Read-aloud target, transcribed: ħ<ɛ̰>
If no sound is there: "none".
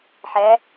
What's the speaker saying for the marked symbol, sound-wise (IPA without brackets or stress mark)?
ɛ